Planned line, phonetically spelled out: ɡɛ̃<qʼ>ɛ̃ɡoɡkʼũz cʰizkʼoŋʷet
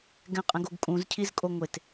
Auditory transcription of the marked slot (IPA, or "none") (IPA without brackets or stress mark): qʼ